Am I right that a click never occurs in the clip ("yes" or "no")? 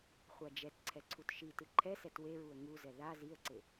no